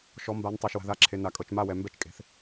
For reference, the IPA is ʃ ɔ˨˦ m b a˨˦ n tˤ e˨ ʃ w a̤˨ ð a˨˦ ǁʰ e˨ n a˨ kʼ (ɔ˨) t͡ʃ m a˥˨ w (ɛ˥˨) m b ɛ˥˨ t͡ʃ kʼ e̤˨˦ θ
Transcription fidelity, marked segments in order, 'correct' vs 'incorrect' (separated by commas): incorrect, incorrect